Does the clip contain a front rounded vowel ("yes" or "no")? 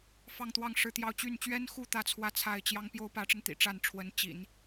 yes